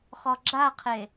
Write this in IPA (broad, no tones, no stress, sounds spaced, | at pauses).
χ ɔ ɡ͡ǁ a qʰ e